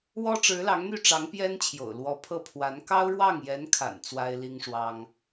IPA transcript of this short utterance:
wɔ˥ʈ͡ʂɻ̩˧˥lɑ˧˥ŋn̪y˥˩ ʈ͡ʂɑ˧˥ŋpjɛ˥nt͡ɕʰjo̰˨˩ʊ̯ lwɔ˧˥ pʰɤ˥˩pʰwa˧˥n kɑ˥ʊ̯ɻwɑ˥˩ŋjɛ˧˥nkʰa̰˨˩n t͡swa˥ɪ̯li˥ŋʂwɑ˥ŋ

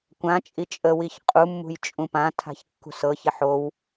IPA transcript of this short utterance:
kʷãt͡ʃʼi t͡ʃʼəwiç qʼumːṳj t͡ʃʼũpãtʰa̤ç kːṳsɤçɪ ħow

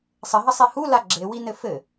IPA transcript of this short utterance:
sˤɘɦɐsˤi hula ɡ͡ǁewinɘ fɘ

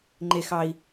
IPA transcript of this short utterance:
ŋ͡ǃe˦xɑ˦i̯

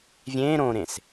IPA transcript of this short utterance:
vʲẽːɾõɾẽs

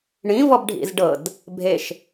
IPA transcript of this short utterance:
ɳĩ vɔbɖʱḭzɖɤd | bʱeʃ

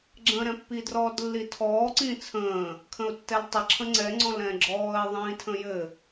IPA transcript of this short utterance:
ɡ͡ǁə̃ːɾɛ̃pːi drɔːdlːitʰɔː ǀĩːt͡sʰə̃ː | kʰə̃ʊ̯tːɛltˤɪ ǁʰə̃ŋ͡ǀɛ ŋ͡ǀɔ̃lɛ̃ɡ͡ǁɔːɪ̯ ðˤĩːtʰə̃jɘ

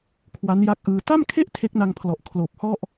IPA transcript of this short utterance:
kʰwa˦˥nja˦˥k̚ʔɯː˧ ta˥˩mkʰe˥˩ʔ tʰe˦˥k̚na˧ŋpʰlɔ˨˩ʔ kʰloː˨˩p̚ hɔ˥˩ʔ

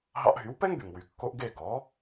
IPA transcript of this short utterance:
ɦɑ̰˧ʔɦy˩˥wpɛ˥ŋ by˩ŋwy˩ kːo˧ʔ ɡe˥˩ ɡɔ˩˥

